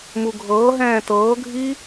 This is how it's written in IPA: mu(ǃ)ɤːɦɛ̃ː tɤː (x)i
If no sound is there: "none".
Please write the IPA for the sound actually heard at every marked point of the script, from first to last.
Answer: ɡʱ, ɡʱ

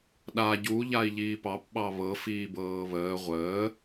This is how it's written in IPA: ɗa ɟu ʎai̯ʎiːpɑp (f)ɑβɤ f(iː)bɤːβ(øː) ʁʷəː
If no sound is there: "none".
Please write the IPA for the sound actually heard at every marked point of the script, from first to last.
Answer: ɓ, iː, əː

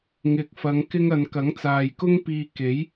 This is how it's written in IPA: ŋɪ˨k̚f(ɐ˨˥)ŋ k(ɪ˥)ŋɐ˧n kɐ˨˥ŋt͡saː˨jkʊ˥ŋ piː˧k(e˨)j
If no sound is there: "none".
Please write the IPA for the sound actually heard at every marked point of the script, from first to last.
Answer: ɐ˨˧, ɪ˥, e˨˥

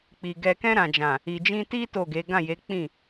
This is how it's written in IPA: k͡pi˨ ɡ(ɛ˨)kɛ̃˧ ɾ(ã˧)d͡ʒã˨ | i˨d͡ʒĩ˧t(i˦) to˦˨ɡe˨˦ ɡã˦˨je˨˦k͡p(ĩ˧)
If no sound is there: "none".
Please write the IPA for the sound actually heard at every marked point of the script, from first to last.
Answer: ɛ˨, ã˨, i˦, ĩ˦˨

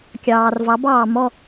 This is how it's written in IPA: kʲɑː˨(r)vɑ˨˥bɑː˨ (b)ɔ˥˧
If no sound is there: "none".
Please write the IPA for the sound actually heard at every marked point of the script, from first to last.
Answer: r, m

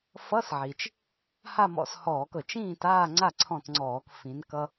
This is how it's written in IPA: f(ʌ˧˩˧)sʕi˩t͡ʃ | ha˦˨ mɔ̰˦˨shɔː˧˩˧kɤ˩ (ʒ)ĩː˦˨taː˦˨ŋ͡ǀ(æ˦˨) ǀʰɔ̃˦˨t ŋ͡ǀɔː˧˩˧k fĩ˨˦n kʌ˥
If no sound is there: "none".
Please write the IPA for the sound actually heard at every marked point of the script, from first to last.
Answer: ʌ˧˥˧, t͡ʃ, a˦˨

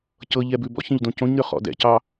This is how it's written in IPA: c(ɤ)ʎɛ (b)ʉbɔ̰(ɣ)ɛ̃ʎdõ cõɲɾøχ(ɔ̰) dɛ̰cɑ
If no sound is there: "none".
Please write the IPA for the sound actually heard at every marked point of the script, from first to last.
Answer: ɤ, b, ç, ɔ̰

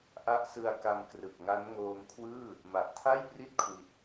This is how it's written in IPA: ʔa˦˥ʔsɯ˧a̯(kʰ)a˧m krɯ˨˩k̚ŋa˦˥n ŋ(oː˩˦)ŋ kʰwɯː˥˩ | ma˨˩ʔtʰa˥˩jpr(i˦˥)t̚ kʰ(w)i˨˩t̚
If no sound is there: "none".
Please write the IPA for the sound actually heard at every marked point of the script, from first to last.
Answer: k, oː˧, i˥˩, w

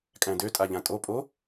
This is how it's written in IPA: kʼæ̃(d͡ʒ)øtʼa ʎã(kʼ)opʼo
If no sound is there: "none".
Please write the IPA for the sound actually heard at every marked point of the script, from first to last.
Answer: d, tʼ

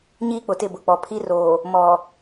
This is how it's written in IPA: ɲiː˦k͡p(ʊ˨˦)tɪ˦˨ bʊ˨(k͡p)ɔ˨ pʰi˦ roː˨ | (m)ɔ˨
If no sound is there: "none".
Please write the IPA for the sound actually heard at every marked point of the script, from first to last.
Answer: ʊ˨, k͡p, m

